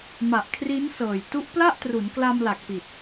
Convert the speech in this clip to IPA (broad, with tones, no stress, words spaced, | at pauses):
ma˨˩ʔkʰri˦˥nsɤː˨˩j tu˦˥ʔpla˥˩ʔtru˩˦nkla˧m la˨˩k̚pi˨˩t̚